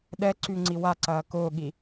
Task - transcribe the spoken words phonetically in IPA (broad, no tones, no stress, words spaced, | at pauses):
ɗɛǀyŋ͡ǀi waǀɐː kʊːɠi